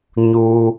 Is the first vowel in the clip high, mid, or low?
high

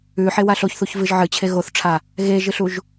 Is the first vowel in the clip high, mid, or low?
high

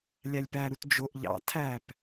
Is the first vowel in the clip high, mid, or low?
low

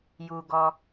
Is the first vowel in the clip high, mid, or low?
high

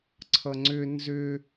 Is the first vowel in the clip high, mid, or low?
mid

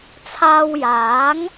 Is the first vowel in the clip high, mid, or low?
low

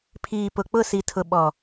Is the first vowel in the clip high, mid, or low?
high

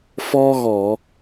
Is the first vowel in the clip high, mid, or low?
mid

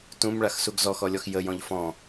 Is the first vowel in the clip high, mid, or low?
high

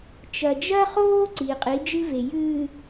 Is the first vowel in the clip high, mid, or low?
low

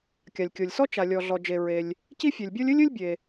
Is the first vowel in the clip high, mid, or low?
low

